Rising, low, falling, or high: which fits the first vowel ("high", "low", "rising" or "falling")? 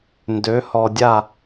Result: rising